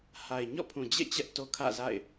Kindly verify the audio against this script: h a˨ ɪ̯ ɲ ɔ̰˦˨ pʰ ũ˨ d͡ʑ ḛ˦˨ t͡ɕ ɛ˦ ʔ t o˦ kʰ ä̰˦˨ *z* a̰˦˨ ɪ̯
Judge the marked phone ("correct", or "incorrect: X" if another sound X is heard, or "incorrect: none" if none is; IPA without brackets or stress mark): correct